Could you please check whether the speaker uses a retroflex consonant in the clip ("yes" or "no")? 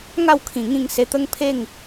no